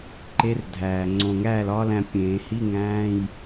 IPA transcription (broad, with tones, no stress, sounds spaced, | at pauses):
ǃ e˧˥ r dʱ æː˨˩ ŋ͡ǀ õ˨˩ ŋ æː˥˩ l ɒː˧˥ l æ̃˧ pʲ ẽː˨˩˦ h i˧˥˧ ŋ æ̃ː˧˥˧ j